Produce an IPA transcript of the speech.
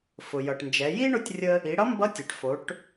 f ʊ˩ j ʌ˩ ʈ n d͡ʒ ɛ˩˧ j i˥ ɳ ʊ˧˥ tʲ rʲ ə˧ | i˩˧ ɽ ʌ˧˥ m b ʌ˧˥ tʲ ɛ˩ ʈ f o˩˧ ʈ

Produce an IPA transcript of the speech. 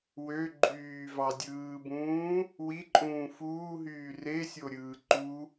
w ø ɡ͡ǃ yː v ɑ dʲ ɯː b ũː | w i ǃʼ ũː f uː ɦ yː r e sʲ o ɾʲ ɯː ǃ u

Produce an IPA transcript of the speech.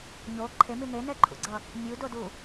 ɲ o ǃʰ e m i n e n ɛ ǃʰ ṵ ɡ͡ǀ ʌ | mʲ u d o d u

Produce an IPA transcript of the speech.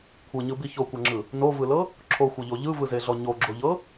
kʷʰ ɯ ɲ ɯ b i ç o kʷ ɤ ŋ͡ǁ ɯ | n o v ɯ l ɤ | ǁʰ o xʷ ɤ ʎ o ʎ ɯ v ɯ z e ɮ ɔ ɲ o ɡ͡ǁ o ʎ ɤ

